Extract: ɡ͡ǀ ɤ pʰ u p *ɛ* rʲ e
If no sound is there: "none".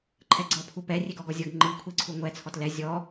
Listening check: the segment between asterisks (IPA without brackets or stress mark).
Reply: ɛ